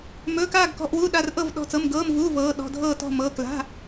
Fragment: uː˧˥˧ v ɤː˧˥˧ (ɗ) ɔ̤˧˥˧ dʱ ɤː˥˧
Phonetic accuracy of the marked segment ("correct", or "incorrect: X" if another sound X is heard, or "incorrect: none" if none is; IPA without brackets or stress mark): correct